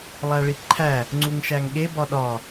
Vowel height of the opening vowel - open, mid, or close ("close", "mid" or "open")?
open